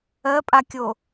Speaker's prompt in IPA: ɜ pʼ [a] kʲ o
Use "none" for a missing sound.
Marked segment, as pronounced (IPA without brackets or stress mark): a